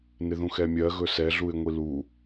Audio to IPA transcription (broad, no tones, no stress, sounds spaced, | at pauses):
n ɪ ð ũ x ɛ mʲ ɜ ɣ ɵ s ɛ ɮ u ɪ̯ ŋʷ i l u